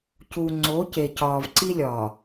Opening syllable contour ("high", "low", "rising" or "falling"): low